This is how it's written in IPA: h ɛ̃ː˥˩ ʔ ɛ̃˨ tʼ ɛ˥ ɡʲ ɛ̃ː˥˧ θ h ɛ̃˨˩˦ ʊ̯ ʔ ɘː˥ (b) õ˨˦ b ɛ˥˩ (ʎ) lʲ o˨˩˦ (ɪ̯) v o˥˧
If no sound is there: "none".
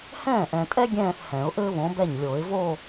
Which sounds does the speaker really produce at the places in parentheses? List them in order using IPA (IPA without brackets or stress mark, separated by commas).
β, ɲ, ɪ̯